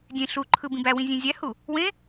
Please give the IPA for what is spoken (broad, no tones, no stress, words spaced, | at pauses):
dʲẽ ɬu ǃʰɯbĩbæwĩ zʲẽzʲæhu | wẽ